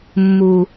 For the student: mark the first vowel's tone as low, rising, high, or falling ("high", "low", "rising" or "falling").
low